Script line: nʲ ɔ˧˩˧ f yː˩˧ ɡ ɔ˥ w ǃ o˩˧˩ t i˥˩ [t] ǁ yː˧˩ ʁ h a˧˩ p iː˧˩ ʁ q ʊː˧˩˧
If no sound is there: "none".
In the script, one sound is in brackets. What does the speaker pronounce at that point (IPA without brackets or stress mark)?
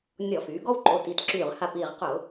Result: t